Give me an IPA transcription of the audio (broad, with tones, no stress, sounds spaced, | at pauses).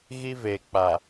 ɣ i˦ v e˨ k͡p a˨